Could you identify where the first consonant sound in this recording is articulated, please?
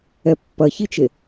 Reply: labial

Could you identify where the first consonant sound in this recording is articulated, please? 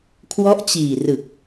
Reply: velar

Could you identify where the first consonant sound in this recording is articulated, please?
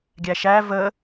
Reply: velar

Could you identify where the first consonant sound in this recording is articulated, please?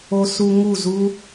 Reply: alveolar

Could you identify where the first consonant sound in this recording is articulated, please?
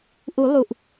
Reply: glottal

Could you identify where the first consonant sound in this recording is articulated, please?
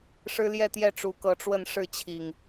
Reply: retroflex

